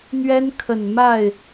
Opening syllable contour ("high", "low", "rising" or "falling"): high